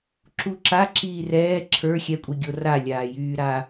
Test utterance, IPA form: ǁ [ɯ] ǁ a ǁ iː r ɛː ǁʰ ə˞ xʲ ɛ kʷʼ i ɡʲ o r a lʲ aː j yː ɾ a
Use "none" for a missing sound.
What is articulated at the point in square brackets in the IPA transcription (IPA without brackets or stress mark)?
u